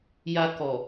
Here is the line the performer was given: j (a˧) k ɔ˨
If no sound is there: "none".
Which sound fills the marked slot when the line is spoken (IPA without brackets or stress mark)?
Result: a˧